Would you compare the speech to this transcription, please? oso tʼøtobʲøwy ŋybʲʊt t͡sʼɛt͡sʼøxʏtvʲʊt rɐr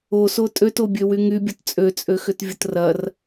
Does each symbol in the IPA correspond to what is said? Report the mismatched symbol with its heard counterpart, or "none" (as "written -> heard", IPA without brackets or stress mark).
ɛ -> ø